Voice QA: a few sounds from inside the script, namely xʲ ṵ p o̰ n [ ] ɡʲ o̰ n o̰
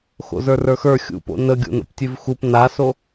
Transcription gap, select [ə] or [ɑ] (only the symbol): ə